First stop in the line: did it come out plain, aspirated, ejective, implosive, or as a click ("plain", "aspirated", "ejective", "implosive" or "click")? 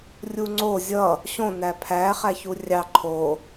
click